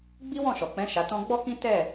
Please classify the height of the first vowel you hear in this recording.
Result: high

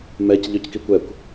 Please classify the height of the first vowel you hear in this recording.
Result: mid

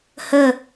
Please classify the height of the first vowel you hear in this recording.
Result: mid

